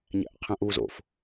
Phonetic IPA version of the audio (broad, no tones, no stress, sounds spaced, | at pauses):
ɲ æ̰ ʔ qʰ æ̃ ʔ β u z o̰ f